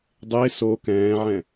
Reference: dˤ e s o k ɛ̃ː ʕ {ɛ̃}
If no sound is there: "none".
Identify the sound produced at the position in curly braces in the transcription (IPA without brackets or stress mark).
ɛ̃